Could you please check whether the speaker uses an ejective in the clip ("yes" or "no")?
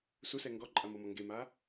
yes